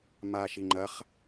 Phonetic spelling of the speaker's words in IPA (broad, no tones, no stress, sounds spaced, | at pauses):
m a ʃ i ŋ͡ǃ ɐ χ